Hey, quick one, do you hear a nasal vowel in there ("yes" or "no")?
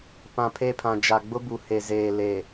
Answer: yes